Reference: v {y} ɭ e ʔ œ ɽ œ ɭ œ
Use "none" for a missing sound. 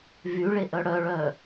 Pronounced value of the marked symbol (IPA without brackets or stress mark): y